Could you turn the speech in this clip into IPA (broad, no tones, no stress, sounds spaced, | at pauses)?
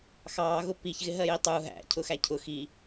x ɑː ɣ ʊ p i ç ɣ ɪ ɦ ɜ j i tˤ u ɦ æ̰ cʰ ʊ x æ cʰ ʊ x i